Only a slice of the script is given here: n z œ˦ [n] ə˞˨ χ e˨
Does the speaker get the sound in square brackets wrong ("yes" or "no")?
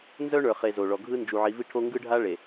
yes